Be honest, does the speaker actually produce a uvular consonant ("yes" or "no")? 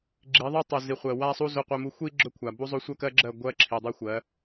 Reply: yes